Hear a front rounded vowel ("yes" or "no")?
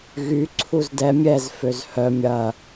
yes